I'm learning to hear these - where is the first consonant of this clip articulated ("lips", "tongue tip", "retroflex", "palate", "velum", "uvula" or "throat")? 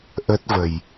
throat